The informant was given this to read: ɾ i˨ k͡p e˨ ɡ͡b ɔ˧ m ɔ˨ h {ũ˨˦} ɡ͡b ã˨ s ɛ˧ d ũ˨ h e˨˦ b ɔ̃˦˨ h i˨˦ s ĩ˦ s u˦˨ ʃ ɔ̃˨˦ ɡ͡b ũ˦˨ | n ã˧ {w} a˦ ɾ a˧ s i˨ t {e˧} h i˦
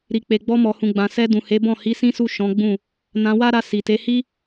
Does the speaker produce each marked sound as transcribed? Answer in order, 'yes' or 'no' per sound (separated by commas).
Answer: no, yes, no